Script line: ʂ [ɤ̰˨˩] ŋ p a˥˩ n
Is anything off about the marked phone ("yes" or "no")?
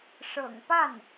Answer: no